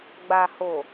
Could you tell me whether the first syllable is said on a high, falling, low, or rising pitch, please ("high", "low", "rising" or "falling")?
low